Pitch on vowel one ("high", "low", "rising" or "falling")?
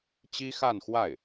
high